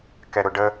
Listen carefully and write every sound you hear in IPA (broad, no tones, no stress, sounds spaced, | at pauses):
k ɛ ɾ ʊ ɖ ə